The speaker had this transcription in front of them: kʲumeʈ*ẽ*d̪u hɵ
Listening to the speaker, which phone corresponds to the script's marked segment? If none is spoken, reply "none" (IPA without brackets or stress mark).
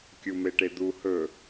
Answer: e